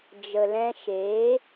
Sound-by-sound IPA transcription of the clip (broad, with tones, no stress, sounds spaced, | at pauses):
d͡ʒ ə˨ l ɛ̃˧ ʃ eː˨˦